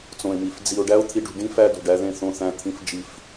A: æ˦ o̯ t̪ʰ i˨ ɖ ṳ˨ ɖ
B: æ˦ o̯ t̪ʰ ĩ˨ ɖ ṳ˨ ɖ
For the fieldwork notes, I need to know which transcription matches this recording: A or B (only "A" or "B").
A